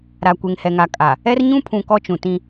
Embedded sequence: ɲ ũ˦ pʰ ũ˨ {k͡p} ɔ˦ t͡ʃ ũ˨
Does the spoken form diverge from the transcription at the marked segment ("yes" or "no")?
yes